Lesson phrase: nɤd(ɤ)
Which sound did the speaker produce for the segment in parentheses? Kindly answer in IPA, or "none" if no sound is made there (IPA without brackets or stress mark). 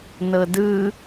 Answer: ɯ